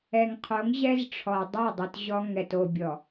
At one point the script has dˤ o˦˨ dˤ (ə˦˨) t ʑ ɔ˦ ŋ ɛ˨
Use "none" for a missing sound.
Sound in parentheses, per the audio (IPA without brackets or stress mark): ə˨